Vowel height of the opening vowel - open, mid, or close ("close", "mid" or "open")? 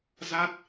open